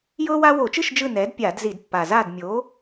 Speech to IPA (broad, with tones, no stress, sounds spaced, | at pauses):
j ɤː˦ w a˦ w o˧˩˧ t͡ʃ ɯ˥˨ ʃ d͡ʒ ɯ˥˨ n ɛː˩˥ d pʲ aː˧˩˧ d z i˧˩˧ d pː a˨˩ z aː˥˨ d mʲ o˩˥